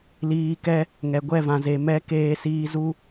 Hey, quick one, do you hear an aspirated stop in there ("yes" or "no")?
no